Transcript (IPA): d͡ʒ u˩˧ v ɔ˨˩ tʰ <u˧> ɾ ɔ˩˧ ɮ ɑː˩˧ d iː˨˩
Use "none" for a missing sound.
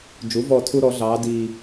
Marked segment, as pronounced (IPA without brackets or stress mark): u˧